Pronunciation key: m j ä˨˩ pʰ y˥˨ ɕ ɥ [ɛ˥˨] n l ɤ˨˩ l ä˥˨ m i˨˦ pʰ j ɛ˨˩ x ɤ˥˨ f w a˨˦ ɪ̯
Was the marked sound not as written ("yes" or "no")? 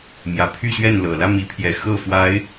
no